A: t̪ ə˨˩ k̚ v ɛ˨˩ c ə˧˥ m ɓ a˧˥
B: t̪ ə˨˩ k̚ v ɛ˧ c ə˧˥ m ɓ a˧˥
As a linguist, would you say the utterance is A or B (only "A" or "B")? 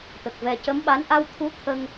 A